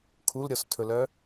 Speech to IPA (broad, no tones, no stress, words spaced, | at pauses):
kʰulɾʲɔstʰɵlœ